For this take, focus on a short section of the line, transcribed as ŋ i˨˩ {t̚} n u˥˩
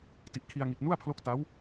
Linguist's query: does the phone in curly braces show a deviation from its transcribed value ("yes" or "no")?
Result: no